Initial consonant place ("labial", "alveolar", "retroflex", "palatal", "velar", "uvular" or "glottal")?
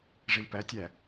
retroflex